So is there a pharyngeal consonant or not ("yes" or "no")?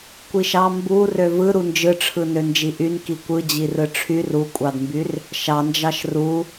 no